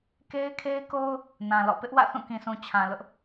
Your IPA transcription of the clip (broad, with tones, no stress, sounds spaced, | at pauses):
k e˦ ɪ̯ kʰ e˦ ɪ̯ k o˦ ʊ̯ | n ã˨ l ɔ̰˦˨ p ɪ˦ ʔ w ä̰˦˨ θ ũ˦˨ k ĩ˨ sʰ ũ˨ t͡ɕʰ ã˨ l ʊ˦ ʔ